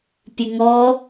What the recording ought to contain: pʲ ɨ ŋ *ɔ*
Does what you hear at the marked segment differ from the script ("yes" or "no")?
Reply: no